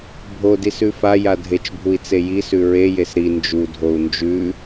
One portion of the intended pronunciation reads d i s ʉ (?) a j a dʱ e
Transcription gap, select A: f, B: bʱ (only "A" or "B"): A